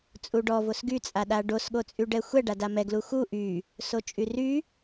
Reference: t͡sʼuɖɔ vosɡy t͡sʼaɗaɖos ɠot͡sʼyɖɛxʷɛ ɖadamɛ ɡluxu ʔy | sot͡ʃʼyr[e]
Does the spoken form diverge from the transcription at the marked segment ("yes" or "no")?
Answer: yes